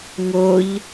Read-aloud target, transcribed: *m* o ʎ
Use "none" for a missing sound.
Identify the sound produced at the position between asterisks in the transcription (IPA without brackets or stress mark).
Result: ŋ